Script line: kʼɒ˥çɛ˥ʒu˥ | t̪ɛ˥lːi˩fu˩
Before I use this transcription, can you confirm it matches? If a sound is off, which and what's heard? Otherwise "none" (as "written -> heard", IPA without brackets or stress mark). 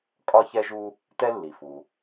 none